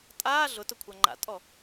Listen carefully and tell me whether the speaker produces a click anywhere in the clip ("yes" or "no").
yes